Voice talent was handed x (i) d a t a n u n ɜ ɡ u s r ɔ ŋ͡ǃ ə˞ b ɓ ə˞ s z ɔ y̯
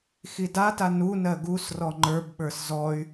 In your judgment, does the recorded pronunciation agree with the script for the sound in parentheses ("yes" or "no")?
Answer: yes